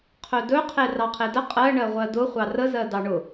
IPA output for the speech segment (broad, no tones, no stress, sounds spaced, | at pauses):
qʰ ɵ d ɵ qʰ e r ɑ qʰ e d ə qʼ ɜ ɳ ɜ ʁʷ ɜ d ʊ χʷ ɑ r ə z ɜ d ɑ ɳ ʊ